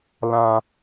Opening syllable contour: high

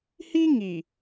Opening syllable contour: high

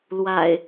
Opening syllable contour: low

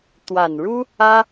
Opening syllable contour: low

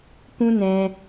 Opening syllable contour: high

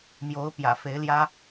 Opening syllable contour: rising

